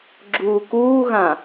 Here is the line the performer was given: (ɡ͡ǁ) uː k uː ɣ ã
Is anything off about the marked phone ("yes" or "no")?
no